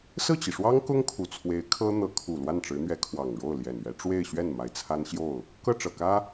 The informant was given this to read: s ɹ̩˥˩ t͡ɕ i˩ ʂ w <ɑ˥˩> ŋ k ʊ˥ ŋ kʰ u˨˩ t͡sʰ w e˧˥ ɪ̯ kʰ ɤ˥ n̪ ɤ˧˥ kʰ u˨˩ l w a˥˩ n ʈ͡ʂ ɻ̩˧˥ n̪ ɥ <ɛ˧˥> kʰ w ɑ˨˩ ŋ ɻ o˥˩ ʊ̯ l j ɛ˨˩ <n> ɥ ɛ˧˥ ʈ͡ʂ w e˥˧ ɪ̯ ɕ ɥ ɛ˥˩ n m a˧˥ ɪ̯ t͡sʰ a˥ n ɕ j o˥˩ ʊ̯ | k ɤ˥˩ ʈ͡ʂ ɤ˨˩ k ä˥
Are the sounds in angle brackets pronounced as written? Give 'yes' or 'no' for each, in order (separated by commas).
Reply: no, yes, yes